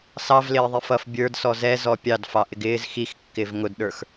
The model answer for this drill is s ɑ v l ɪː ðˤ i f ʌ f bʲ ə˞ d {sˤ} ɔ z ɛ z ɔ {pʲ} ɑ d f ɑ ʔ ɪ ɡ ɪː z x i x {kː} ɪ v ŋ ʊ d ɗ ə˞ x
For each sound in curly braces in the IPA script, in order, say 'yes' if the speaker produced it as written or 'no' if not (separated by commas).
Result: no, yes, yes